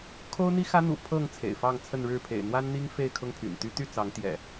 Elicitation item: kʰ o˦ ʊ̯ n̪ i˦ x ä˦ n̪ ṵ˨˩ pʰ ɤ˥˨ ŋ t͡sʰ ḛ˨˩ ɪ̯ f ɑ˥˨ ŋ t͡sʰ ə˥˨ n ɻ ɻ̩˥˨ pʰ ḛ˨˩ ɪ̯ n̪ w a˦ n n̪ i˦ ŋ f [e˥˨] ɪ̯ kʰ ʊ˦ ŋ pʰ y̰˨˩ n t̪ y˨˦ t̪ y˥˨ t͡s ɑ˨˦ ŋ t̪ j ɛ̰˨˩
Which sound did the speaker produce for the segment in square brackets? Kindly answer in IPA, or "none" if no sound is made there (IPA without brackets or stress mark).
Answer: e˥˨